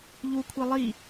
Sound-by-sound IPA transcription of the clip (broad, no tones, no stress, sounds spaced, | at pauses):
ʎ u kʷʰ e lˠ i